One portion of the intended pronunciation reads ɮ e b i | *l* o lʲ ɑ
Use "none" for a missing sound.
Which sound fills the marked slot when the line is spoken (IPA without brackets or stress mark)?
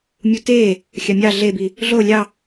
ɮ